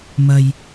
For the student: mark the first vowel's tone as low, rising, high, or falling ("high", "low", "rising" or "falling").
low